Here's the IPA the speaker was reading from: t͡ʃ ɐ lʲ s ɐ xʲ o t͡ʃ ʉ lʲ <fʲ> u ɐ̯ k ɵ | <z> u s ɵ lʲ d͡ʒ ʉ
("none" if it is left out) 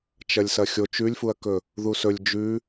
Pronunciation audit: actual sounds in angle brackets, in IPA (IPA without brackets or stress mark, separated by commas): f, ð